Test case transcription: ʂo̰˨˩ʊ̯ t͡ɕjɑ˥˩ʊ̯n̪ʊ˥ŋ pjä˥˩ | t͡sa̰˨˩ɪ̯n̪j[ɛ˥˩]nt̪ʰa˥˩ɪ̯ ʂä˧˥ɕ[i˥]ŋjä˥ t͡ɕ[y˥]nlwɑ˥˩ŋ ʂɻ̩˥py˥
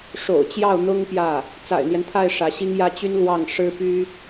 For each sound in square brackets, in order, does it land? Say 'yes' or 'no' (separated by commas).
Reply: no, yes, yes